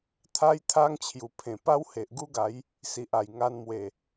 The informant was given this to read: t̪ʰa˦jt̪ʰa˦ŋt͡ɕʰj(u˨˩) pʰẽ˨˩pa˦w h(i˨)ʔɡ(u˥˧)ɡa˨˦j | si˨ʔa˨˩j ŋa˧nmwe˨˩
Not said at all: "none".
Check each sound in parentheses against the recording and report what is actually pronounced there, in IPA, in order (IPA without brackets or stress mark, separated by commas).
u˨˩, e˨, u˦